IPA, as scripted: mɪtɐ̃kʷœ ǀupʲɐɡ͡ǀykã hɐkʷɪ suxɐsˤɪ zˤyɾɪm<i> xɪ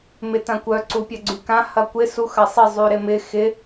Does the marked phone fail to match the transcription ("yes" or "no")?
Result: yes